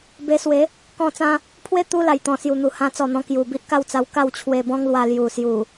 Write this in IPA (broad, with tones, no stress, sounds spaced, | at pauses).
b e˧ s w e˨˦ | k ɔ̃˧ t͡s ã˧ | pʰ w e˦ t̪ u˦ l a˨˩ j t̪ ɔ̃˨˩ s j u˨˩ n̪ u˨˩ h ã˧ t͡s ɔ˨˩ n̪ ɔ̃˧ k j u˨˩ b i˦ ʔ k a˥˧ w t͡s a˧ w k a˥˧ w t͡ɕʰ w e˧ b ɔ̃˦ ŋ l w a˧ l j u˨˩ s j u˨˩